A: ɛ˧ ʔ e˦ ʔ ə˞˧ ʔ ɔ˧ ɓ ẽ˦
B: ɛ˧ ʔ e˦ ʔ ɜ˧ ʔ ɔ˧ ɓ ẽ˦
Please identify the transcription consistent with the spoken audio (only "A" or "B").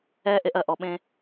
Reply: B